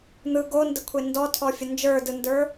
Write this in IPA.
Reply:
n̪ɯ ɡondəkʷʰe ndɔtʰɔfʲə nd͡ʒə˞dɯndə˞

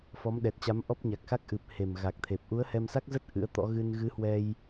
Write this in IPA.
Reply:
fɔ˨˦mɗɛ˨˩t̚t͡ɕa˨˦m ʔɔ˦˥p̚ɲa˨˩k̚xa˦˥k̚ ʔɨ˨˩p̚ he˨˩mɣa˨˩k̚t̪ʰe˨˩p̚ ʔu˨˦ə̯hɛ˧msa˦˥k̚zə˦˥t̚ ʔɨ̰˧˥ə̯t̪ɔ̰˧˥ ɣɨ˧n ɣɨ˨˦hwɛ˧j

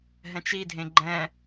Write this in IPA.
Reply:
ɦɛ̃t͡ʃidʱẽ ɡ͡ǃɛ̃

